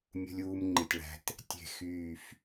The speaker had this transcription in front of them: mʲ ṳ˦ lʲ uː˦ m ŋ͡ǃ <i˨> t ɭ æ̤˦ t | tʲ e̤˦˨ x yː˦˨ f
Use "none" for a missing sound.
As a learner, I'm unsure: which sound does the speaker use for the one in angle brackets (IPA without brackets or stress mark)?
i˨